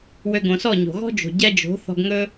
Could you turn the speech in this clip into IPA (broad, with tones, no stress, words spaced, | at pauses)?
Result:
wø˧ɡõ˨sɔ˦˨ɲo̤˨ ɣɔ̤˦d͡ʒo̤˨ ɟɛ˧d͡ʒo̤˨˦ θɔ̤˧ɡŋɵ˦